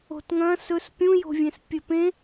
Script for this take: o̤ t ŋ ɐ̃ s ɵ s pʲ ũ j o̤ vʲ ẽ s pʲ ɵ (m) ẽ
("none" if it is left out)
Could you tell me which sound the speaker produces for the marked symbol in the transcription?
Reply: p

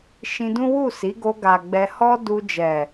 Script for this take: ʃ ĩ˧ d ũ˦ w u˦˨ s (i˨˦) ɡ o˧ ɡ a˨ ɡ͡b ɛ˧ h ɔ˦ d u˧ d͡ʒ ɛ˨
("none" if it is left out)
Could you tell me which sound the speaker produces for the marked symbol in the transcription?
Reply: i˨˦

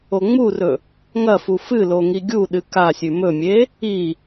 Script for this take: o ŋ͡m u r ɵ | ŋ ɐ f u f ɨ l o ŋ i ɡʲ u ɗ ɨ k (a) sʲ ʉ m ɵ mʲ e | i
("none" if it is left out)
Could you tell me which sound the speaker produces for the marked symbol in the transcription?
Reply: a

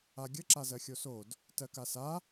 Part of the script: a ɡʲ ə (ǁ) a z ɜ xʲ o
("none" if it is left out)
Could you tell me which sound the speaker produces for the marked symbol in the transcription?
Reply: ǁ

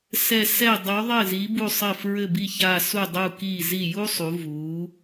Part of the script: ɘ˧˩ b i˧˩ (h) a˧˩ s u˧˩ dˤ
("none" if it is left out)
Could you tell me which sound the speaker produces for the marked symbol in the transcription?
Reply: ç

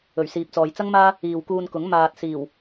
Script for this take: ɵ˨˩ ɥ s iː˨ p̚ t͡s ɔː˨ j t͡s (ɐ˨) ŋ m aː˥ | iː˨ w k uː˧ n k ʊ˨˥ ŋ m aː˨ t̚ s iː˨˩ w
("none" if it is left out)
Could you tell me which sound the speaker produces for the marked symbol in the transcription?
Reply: ɐ˥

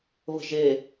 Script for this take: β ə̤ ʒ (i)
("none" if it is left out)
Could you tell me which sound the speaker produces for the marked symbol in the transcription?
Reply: e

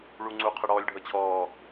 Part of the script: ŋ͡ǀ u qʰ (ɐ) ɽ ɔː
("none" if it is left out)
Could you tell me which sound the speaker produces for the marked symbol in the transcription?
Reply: ə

